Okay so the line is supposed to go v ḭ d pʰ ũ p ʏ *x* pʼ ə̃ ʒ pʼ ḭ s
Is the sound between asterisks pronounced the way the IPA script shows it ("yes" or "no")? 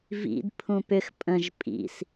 yes